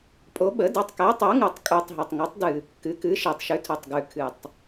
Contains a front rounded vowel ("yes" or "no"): no